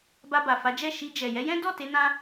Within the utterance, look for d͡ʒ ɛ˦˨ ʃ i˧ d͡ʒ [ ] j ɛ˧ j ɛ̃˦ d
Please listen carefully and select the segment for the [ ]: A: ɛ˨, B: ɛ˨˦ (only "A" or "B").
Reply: A